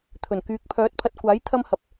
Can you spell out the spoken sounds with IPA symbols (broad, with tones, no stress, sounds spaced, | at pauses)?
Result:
t̪ʰ ɵ˨˩ n k yː˨ k̚ pʰ œː˨˥ t̚ pʰ ɐ˨ t̚ kʷ aː˨˥ j t̪ʰ ɐ˧ m h ɐ˨ p̚